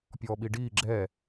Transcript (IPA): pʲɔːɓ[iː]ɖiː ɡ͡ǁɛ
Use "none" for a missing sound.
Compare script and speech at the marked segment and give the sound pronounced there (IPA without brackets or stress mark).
i